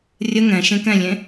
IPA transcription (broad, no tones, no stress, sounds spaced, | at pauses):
rʲ ə ŋ ɛ̃ ʃ ẽ k ɛ̃ lʲ ẽ